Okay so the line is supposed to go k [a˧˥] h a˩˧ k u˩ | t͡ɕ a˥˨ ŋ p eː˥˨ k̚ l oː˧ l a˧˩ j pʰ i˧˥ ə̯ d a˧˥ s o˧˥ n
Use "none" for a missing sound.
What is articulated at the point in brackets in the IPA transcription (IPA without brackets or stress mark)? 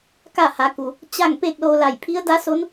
a˥˨